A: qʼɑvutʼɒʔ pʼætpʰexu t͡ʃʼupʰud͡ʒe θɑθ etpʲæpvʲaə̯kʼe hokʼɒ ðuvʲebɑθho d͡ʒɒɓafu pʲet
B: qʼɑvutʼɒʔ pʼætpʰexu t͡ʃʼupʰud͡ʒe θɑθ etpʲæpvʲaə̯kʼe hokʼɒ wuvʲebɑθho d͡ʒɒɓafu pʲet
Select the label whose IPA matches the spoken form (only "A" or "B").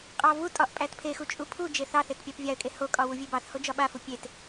B